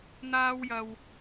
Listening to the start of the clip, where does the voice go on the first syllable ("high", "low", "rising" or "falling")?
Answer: high